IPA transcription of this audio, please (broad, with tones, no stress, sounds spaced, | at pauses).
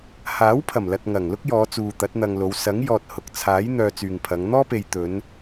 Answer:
h aː˨˥ w pʰ ɐ˨˩ m l ɐ˨ t̚ ŋ ɐ˨˩ ŋ l ʊ˥ k̚ j ɔː˨˧ t͡s uː˨ t̪ ɐ˨˥ t̚ n̪ ɐ˧ ŋ l o˨˧ w s ɐ˨˥ ŋ j ɔː˨ t̚ h ʊ˨ k̚ t͡sʰ aː˨˥ j n̪ œː˧ t͡s yː˨ ŋ pʰ ɐ˨˧ ŋ n̪ ɔː˥ p e˨ j t̪ ɵ˨˧ n